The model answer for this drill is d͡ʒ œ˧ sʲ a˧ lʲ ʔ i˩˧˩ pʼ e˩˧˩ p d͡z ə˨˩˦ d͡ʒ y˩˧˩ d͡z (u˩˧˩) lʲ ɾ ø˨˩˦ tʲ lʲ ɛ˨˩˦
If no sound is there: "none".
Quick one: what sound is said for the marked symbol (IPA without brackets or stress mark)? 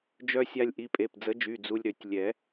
u˧